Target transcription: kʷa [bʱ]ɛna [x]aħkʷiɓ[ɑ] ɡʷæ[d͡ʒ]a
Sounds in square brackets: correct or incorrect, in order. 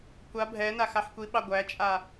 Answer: correct, correct, correct, incorrect: t͡ʃʼ

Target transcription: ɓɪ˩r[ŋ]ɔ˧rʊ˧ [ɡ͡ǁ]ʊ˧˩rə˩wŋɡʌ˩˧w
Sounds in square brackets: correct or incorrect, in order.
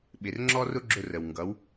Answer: incorrect: ŋ͡ǁ, correct

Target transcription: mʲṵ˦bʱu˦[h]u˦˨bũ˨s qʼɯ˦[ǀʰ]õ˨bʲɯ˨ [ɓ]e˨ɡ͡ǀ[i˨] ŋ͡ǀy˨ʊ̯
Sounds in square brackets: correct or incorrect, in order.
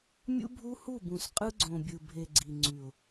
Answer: correct, incorrect: ɡ͡ǀ, incorrect: bʱ, correct

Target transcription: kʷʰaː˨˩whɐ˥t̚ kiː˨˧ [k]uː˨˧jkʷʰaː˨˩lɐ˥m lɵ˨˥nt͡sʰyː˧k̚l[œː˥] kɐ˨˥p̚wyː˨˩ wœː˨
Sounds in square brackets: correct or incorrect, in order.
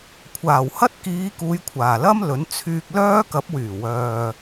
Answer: correct, correct

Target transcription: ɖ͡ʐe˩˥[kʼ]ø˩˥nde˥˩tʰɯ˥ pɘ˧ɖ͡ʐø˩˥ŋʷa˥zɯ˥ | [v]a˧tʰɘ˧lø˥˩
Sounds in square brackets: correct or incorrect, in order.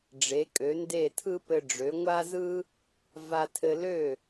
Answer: correct, correct

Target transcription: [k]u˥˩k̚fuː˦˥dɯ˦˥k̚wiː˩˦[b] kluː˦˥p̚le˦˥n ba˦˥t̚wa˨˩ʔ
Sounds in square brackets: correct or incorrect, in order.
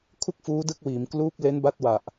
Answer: incorrect: kʰ, incorrect: m

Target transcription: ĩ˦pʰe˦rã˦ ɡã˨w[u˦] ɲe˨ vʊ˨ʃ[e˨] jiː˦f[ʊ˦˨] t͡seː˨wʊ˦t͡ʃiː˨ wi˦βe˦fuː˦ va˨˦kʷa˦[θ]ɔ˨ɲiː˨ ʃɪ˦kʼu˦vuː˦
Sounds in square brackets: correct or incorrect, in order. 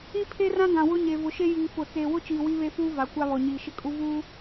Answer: incorrect: ʊ˦, incorrect: e˦, correct, incorrect: β

